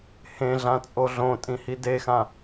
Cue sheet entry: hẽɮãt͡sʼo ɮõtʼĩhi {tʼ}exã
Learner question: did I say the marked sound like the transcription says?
no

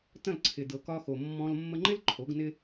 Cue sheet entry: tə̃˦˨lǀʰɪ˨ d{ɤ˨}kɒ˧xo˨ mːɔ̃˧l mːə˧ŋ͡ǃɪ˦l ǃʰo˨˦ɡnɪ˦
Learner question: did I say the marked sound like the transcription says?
yes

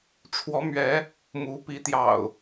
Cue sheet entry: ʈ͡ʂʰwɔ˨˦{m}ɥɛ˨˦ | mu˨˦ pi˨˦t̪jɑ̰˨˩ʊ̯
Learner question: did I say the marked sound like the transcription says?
yes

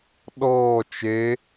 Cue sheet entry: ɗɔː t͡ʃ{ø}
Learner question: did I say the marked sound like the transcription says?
no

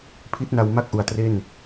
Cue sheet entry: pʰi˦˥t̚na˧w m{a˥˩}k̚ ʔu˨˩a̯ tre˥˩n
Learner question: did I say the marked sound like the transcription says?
yes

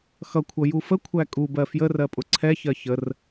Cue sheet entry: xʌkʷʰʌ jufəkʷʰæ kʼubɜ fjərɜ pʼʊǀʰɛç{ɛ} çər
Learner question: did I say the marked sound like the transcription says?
no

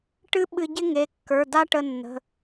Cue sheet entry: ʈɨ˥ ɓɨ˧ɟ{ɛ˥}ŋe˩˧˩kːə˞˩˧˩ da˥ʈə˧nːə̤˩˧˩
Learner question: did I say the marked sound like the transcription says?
no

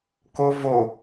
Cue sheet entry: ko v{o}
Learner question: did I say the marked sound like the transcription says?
yes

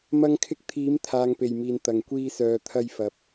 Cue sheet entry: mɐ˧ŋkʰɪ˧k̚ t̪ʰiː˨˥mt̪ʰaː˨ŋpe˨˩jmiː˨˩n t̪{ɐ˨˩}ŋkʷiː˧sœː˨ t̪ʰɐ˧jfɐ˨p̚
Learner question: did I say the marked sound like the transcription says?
yes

